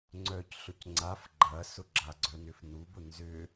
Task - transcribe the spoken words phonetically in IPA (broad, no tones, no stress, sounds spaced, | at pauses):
ŋ͡ǀ œ c ɬ ʊ c ŋ͡ǀ a f ɡ͡ǃ ɐ s ʊ ɡ͡ǁ a ɡ͡ǀ œ n ʏ f n u b ʊ n z ʏ